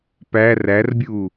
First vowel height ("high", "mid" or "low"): low